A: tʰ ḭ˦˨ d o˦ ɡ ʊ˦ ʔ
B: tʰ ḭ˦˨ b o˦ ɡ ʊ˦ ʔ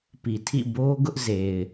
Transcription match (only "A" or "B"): B